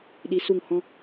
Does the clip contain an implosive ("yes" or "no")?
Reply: yes